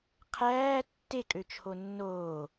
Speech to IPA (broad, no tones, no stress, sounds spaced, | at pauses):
qʰ æː tː e kʼ ø t͡ʃʰ o nː oː